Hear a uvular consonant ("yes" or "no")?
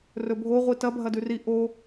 yes